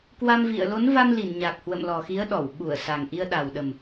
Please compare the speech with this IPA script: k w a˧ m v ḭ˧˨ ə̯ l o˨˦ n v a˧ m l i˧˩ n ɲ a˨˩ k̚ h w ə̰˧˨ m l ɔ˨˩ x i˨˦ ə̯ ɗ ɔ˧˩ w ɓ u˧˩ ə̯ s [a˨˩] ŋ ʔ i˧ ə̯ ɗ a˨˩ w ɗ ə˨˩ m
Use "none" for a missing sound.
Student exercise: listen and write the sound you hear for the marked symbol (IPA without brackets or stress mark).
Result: a˨˩